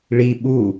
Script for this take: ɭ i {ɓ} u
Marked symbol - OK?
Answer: yes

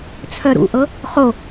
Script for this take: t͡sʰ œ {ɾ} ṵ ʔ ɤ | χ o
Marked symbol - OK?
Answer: yes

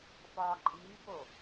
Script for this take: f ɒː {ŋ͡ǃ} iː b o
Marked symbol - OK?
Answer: no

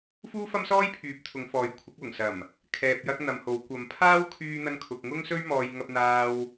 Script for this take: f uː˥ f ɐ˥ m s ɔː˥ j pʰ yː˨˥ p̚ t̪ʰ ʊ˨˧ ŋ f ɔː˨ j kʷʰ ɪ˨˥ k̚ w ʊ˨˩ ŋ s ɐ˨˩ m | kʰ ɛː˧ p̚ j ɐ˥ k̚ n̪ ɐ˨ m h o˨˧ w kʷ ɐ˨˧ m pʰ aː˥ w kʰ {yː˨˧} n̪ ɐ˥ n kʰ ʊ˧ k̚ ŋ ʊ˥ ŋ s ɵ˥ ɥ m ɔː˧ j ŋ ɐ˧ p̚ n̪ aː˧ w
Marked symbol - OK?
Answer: no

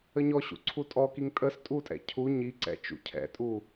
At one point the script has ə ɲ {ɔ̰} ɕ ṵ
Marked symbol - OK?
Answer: no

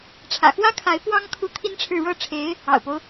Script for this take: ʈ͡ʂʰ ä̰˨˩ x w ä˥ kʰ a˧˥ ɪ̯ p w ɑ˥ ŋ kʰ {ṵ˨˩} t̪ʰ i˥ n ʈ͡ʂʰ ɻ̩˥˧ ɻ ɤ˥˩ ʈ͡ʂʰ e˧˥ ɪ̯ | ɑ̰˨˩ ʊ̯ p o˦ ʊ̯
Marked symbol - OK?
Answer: no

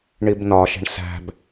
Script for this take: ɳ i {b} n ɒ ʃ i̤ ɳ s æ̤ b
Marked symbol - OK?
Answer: yes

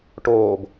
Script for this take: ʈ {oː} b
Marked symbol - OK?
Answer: yes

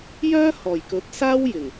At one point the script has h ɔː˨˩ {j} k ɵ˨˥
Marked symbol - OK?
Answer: yes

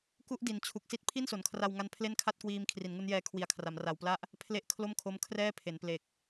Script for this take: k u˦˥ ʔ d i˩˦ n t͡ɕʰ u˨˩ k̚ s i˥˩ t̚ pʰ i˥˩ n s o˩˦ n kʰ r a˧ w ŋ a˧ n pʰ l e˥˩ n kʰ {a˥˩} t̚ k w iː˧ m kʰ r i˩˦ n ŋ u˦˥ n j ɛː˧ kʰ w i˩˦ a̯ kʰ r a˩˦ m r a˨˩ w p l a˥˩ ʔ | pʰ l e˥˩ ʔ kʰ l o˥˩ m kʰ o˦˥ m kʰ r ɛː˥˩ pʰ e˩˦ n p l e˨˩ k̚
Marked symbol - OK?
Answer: yes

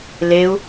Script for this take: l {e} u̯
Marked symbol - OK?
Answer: yes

